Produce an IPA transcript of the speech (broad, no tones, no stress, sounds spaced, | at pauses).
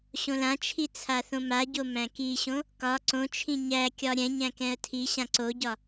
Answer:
ɕ õ l ã t͡ʃʰ i t͡sʰ a θ õ m a ɟ o m æ̃ k i ɕ õ | k ɒ ǀ õ t͡ʃʰ ĩ ɲ æ kʲ ɒ ɾʲ ɛ̃ ɲ æ̃ k ɛ̃ ə̯ tʰ i ɕ ã ǀ o ɟ ɒ